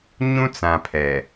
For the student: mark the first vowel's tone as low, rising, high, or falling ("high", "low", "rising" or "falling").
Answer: high